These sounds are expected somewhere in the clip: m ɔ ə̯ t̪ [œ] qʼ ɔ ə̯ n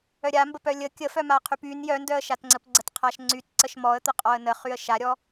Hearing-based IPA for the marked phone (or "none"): ə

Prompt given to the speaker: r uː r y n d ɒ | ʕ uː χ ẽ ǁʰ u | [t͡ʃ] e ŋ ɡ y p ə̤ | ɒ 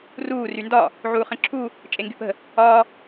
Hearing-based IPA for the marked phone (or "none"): t͡ʃʼ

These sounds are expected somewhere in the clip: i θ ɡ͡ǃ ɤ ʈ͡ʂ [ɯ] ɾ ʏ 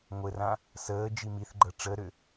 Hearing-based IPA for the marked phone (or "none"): ə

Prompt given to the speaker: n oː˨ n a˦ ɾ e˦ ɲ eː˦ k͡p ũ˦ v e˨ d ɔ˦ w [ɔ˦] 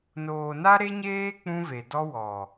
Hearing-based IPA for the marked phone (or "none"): ɔ˨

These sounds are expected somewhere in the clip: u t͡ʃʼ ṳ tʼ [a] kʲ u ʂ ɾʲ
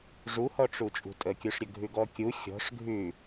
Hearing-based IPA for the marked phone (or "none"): ə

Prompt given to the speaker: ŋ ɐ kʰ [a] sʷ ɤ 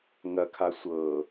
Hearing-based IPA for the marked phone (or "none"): a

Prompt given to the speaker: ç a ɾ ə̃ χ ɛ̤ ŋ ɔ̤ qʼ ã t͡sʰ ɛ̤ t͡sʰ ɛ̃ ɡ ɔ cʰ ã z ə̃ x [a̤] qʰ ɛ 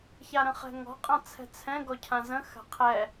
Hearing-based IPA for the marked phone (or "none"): a̤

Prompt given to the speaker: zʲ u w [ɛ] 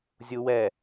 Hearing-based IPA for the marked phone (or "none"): ɛ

